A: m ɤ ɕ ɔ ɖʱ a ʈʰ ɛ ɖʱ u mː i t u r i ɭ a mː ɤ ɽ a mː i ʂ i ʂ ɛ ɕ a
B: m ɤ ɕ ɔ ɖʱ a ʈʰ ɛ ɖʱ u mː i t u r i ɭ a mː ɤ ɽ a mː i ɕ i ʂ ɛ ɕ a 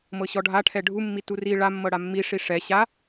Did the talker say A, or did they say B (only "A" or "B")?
A